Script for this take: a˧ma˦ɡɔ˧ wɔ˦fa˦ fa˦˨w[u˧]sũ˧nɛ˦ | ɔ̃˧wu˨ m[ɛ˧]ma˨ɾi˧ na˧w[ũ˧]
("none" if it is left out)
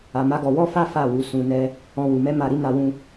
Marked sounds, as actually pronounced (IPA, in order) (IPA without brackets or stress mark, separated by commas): u˨˦, ɛ˧, ũ˧